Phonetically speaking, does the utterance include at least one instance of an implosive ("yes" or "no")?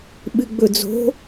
yes